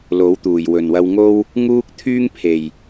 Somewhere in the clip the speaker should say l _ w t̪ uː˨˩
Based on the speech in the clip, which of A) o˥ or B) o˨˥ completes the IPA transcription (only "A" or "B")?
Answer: B